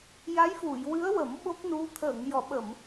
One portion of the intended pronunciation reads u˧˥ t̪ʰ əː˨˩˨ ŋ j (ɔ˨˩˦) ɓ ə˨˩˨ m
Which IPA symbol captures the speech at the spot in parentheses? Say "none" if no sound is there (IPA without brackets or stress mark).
ɔ˨˩˨